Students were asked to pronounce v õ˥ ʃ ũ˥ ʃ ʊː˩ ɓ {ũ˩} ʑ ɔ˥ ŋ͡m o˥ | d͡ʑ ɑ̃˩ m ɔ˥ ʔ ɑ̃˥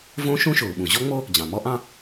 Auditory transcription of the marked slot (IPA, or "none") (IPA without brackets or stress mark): ũ˩